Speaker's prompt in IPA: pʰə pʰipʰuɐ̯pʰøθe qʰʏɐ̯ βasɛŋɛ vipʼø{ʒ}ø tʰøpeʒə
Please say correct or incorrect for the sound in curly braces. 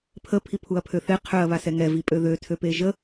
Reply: incorrect